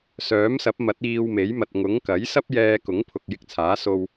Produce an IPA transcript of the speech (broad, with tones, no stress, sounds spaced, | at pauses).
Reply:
s œː˨˥ m s ɐ˨˥ p̚ m ɐ˨˥ t̚ iː˧ w m e˨˥ j m ɐ˨ t̚ ŋ ʊ˨˥ ŋ k ɐ˨˥ j s ɐ˥ p̚ j ɛː˧ k ʊ˨˥ ŋ pʰ ʊ˨ k̚ j ɪ˧ k̚ t͡sʰ aː˨˥ s o˧ w